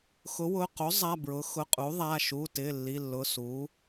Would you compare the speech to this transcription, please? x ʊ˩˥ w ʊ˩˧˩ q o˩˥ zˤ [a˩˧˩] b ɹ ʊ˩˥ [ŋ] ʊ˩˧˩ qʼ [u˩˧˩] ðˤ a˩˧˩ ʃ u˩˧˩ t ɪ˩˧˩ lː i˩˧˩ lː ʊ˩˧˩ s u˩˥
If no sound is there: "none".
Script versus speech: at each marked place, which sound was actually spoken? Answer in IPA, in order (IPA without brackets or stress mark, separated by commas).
a˩˧˩, x, u˩˥